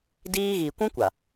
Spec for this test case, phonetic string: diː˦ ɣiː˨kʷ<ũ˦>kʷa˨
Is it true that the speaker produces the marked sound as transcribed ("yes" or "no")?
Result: yes